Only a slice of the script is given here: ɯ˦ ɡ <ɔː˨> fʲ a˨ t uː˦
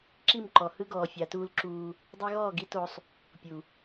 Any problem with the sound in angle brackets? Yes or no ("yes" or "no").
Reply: no